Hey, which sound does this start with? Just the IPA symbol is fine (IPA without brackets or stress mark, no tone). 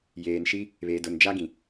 j